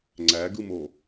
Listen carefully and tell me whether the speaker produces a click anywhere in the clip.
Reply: yes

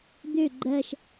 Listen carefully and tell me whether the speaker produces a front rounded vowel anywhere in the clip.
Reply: yes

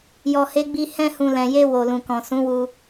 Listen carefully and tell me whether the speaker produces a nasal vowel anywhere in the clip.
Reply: yes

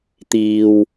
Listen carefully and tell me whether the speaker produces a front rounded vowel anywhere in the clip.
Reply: no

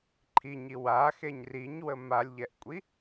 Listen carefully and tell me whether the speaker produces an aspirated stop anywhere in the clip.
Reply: yes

